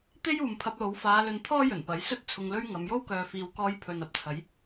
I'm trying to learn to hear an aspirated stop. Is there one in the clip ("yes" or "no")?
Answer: yes